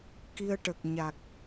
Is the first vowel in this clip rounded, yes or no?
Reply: no